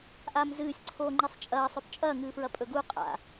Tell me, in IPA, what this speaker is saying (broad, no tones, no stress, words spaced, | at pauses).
ʔaːmzɨːsʲǀʰoː ŋ͡ǃisˤt͡ʃʼɐːsˤɵp t͡ʃʼɐːŋɨːfɹɐ pʼɵɡu qʼa̰